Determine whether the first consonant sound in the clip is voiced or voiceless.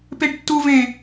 voiceless